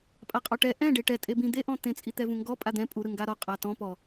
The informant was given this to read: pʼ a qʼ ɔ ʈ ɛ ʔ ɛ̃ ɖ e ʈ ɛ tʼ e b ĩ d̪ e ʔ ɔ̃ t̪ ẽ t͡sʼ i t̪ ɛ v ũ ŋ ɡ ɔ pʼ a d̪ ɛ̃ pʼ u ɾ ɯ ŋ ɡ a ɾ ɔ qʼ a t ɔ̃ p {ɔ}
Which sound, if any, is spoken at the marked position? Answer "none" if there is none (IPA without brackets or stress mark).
ɔ